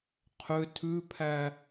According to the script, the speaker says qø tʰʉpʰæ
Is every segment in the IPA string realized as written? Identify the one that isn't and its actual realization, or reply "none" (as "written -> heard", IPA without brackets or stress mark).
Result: q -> qʰ